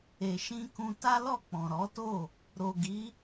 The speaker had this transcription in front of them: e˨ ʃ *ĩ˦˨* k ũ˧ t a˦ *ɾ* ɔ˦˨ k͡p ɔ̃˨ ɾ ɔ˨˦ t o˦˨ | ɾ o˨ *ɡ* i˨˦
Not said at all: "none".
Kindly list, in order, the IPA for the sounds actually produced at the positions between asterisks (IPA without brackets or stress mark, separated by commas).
ĩ˧, l, ɡ